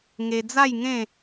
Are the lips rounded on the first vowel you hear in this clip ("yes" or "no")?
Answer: no